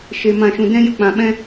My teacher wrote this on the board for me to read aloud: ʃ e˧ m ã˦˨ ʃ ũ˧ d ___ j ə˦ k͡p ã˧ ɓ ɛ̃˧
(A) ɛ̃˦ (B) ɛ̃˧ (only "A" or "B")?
A